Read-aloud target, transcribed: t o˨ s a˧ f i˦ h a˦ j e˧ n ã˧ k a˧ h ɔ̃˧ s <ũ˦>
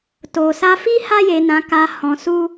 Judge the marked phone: incorrect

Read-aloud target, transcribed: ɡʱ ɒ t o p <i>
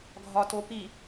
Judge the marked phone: correct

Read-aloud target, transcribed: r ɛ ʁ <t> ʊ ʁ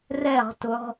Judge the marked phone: correct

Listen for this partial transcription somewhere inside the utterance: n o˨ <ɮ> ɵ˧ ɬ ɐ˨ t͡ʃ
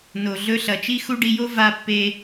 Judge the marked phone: correct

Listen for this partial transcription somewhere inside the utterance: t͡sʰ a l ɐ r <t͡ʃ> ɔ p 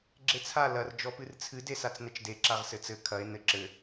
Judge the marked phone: incorrect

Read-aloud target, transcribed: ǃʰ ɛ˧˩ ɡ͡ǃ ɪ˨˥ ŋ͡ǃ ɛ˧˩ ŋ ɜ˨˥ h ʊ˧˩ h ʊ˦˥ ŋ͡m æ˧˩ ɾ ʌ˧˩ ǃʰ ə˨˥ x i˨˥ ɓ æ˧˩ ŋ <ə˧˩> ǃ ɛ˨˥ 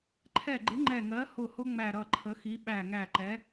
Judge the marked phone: incorrect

